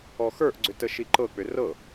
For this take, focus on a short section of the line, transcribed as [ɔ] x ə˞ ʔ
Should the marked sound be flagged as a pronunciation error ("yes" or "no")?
no